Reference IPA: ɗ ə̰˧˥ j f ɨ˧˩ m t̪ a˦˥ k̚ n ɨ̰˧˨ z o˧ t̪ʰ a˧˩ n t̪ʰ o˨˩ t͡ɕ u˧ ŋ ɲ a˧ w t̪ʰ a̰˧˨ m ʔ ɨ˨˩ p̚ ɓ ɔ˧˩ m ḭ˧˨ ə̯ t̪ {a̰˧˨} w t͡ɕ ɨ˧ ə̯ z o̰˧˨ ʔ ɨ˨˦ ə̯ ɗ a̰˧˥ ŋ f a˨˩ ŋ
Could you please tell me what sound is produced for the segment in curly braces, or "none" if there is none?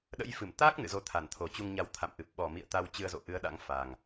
a˧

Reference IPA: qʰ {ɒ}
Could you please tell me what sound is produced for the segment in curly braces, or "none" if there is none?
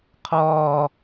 ɒː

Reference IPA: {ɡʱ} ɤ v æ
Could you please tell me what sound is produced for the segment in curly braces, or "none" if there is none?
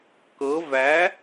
k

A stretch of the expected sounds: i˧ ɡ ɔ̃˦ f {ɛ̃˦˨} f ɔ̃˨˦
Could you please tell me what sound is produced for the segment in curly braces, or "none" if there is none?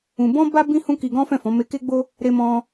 ɛ̃˦˨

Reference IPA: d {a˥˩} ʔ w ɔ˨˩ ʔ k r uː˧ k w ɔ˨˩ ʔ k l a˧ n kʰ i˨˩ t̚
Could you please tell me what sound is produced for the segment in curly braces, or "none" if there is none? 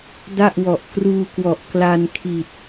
a˥˩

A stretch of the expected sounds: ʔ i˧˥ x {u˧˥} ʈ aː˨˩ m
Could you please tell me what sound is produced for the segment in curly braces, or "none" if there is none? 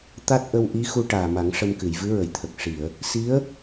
u˧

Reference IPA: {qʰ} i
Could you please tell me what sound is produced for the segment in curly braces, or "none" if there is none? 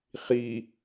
χ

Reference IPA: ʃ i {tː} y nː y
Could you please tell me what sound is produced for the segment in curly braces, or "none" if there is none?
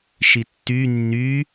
tː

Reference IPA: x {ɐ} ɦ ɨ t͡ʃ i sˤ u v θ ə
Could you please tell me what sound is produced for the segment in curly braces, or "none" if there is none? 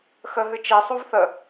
ə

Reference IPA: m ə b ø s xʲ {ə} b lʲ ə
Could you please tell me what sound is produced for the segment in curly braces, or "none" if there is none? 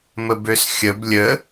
ə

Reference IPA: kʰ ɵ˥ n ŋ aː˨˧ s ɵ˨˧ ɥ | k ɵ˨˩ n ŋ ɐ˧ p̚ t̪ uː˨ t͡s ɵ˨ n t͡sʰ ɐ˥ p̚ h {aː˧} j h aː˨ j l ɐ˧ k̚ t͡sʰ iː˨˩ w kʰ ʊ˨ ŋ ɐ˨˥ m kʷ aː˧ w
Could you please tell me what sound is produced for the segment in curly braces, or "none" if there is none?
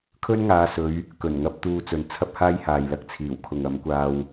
aː˥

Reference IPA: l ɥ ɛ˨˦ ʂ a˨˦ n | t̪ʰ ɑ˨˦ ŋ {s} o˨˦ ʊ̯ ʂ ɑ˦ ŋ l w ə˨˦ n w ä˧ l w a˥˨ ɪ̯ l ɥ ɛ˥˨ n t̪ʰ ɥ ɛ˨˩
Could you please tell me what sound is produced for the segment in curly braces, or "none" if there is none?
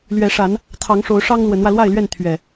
ʂ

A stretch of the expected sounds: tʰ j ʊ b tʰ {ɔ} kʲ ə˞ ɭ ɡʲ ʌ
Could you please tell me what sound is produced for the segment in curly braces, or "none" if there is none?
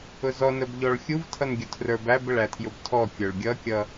ɔ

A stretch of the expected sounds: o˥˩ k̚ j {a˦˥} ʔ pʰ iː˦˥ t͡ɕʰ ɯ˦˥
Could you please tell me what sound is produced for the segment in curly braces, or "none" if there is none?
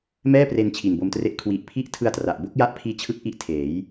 a˦˥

